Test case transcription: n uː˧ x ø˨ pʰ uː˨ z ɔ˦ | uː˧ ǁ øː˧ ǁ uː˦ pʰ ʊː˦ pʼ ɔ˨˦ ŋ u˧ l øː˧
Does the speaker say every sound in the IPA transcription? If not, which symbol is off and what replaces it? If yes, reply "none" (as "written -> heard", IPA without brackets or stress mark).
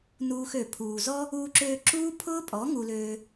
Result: none